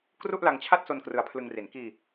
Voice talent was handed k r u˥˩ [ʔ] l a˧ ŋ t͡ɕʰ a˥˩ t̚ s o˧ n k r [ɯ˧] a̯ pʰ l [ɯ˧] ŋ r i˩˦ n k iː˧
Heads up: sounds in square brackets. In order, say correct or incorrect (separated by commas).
correct, correct, correct